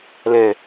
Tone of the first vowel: low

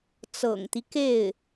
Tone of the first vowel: low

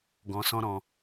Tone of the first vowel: low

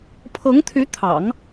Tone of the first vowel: rising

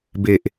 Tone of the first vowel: low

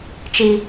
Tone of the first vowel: high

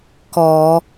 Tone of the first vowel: low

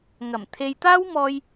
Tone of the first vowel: low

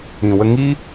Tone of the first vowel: low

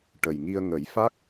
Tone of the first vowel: low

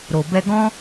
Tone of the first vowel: low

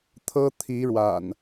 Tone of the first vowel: high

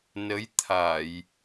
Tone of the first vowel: rising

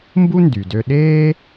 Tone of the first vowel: high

